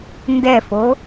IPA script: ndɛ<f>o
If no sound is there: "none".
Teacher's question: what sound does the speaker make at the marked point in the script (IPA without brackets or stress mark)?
f